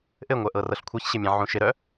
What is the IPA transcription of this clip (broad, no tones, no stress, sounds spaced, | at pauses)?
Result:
ʔ ɘ ŋʷ œ ʔ ɤ r ɤ ɬ kʷʰ ɤ ç ɕ ɪ mʲ ɛ̃ ʕ ũ ʃ ɪ ɾ œ